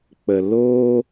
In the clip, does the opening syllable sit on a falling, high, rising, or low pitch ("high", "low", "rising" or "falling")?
low